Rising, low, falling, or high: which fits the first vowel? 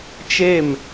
falling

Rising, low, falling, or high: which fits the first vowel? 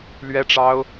high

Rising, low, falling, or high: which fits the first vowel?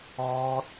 high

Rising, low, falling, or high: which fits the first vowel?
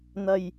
low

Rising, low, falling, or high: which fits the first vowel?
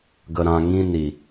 low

